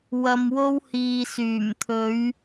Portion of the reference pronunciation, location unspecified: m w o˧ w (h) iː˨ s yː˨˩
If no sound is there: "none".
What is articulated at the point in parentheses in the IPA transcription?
h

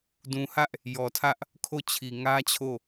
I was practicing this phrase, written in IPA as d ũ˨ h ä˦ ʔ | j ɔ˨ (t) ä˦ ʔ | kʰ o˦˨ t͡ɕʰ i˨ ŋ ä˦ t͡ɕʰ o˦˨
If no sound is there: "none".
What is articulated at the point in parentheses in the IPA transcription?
tʰ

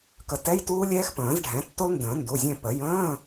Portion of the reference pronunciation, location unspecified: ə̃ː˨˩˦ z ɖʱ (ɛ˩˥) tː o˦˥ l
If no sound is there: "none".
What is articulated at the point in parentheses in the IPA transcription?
ɛ̃˩˥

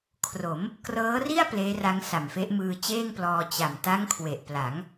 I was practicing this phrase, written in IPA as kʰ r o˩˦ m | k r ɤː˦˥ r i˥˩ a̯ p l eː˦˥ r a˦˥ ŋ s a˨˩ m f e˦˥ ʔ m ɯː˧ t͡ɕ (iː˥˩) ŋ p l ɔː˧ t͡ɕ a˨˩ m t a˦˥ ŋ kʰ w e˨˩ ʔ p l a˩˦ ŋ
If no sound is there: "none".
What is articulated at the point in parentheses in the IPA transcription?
eː˥˩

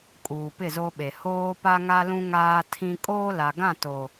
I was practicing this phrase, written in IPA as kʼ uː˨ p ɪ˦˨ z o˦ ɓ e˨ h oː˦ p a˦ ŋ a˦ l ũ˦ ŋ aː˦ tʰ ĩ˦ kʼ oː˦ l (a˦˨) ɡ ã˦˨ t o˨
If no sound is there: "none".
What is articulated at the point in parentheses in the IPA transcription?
a˨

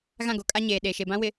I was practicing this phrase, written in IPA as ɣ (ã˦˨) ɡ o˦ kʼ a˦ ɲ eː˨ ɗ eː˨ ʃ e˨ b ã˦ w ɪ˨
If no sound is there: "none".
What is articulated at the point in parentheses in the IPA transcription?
ã˦˨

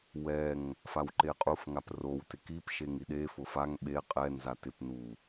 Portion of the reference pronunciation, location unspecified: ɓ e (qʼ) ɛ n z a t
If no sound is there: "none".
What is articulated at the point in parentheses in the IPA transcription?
qʼ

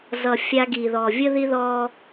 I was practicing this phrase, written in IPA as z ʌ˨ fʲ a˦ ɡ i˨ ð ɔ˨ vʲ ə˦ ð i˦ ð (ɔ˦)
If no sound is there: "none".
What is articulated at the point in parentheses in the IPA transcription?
ɔ˦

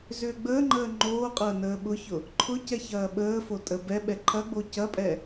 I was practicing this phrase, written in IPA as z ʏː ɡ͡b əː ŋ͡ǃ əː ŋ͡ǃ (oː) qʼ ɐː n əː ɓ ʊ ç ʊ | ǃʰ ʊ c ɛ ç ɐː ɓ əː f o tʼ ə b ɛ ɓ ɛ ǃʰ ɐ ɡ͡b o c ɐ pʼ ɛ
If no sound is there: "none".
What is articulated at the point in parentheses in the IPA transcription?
oː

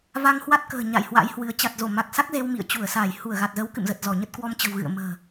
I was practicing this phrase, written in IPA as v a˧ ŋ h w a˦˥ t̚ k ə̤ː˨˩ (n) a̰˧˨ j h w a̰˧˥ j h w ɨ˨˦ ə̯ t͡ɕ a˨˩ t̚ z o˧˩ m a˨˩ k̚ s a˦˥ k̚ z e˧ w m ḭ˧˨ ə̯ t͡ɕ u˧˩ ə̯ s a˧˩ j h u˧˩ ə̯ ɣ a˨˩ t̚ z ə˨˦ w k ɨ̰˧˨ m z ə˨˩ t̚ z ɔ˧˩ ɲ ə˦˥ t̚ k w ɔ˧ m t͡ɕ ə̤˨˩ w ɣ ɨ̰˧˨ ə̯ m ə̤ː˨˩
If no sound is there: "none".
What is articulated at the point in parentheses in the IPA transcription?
ɲ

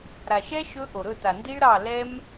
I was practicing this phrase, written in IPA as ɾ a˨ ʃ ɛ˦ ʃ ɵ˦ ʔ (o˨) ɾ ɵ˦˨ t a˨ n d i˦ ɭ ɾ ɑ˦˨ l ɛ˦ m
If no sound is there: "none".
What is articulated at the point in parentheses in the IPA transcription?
o˨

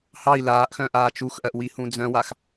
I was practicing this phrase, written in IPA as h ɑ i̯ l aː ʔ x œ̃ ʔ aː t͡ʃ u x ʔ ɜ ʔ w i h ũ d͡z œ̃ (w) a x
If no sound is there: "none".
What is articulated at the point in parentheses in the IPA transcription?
w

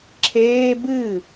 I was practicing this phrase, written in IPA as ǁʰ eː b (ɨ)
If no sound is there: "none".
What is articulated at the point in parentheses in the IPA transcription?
ɨ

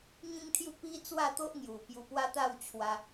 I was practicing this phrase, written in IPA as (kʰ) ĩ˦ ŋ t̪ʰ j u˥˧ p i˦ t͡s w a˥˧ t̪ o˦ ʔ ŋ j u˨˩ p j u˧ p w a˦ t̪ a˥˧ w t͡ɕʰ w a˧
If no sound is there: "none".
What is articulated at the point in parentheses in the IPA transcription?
ŋ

